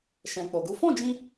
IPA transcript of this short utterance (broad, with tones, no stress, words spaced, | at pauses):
ʃɛ̃˧k͡po˧ɡu˦ fɔ̃˦˨d͡ʒĩ˧